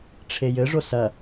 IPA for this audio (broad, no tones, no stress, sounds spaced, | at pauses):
ʈ͡ʂʰ e j ɘ ʐ o s ɐ